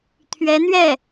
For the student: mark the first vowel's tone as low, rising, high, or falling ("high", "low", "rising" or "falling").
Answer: rising